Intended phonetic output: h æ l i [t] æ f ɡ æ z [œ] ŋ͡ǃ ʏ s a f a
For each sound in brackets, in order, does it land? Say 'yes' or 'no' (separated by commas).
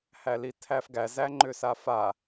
no, no